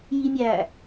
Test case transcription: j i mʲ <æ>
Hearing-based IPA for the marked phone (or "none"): æ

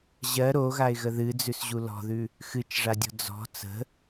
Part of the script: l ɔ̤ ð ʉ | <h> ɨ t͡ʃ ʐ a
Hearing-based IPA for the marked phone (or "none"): x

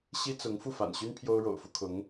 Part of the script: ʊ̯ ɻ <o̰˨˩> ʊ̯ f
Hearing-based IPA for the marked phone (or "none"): o̰˨˩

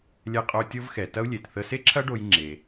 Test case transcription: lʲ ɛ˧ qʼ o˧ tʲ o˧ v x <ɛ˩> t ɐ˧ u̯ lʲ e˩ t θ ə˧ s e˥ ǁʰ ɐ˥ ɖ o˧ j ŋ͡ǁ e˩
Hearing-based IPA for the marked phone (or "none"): ɛ˩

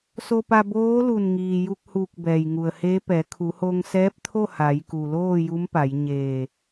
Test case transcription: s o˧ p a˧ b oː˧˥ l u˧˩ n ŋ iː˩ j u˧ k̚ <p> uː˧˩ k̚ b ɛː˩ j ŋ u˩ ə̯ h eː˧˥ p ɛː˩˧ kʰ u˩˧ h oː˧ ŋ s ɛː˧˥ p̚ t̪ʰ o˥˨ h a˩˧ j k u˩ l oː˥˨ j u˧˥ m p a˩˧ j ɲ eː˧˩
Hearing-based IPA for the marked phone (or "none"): h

